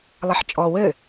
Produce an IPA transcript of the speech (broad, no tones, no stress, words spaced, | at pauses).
lˠɛħt͡ʃʼɔ wɘ